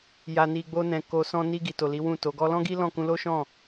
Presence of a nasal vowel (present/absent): present